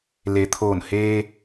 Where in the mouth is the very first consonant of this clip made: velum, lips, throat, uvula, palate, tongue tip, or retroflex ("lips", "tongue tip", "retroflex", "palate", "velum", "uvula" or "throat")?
tongue tip